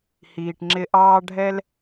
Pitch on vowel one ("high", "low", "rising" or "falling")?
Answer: low